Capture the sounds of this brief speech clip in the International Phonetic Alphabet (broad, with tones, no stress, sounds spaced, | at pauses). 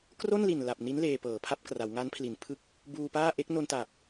k r o˥˩ n l i˨˩ n l a˨˩ p̚ n i˦˥ n l eː˧ p ɤː˩˦ pʰ a˥˩ p̚ k r a˩˦ w ŋ a˦˥ n pʰ l i˩˦ n pʰ ɯ˦˥ k̚ | b uː˧ p aː˥˩ ʔ e˦˥ k̚ n o˧ n t a˨˩ p̚